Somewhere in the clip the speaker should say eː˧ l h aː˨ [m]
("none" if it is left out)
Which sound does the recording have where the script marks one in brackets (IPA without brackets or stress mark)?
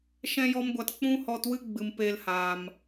m